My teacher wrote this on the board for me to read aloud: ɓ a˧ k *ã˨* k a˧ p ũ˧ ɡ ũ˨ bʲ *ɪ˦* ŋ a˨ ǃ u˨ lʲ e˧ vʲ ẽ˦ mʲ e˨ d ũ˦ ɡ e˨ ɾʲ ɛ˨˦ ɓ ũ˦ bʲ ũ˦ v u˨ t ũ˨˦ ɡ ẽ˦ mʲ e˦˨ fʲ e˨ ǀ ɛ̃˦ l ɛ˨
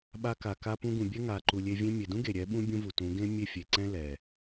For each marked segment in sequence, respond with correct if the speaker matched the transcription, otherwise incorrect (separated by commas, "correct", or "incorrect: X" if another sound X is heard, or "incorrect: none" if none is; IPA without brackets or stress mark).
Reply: incorrect: a˨, incorrect: ɛ˦